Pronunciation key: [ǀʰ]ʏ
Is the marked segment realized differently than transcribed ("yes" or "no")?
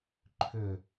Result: yes